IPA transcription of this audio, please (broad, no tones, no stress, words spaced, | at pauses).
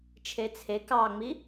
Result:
t͡ʃʰet͡sʰe kɑŋ͡mi